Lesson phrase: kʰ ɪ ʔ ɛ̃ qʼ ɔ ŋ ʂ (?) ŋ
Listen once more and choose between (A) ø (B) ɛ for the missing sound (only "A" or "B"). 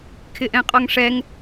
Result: B